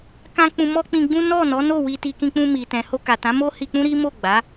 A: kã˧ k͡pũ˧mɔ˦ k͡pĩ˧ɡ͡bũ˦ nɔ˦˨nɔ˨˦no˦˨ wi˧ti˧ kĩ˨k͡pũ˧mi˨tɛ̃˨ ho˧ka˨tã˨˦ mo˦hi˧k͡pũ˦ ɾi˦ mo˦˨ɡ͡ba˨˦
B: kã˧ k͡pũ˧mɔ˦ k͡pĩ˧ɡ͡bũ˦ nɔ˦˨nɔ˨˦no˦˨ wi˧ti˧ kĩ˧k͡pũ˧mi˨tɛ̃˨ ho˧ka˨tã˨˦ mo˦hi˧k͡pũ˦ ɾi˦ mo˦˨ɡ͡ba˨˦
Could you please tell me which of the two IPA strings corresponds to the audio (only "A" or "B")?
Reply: B